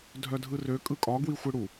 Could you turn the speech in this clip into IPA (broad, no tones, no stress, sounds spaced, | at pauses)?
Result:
dʱ œ dʱ ɯ r ø kʼ ɯ kʼ ɒ ɡ w i xʷ ɯ ɽ u